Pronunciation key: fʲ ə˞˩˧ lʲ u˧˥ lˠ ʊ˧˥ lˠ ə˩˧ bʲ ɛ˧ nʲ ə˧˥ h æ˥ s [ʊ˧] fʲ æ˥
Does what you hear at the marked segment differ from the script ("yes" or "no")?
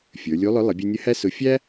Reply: yes